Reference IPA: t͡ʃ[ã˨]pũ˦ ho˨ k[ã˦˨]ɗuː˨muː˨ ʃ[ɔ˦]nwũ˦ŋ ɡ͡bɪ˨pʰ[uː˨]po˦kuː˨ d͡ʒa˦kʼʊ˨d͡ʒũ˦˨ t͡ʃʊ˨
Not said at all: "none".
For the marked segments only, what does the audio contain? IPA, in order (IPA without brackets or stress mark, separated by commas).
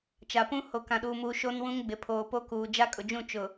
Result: a˨, ã˨, o˦, oː˨